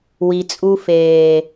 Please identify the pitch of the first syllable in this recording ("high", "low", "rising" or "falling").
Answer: low